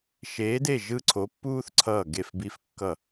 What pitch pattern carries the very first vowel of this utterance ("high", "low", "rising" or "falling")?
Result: rising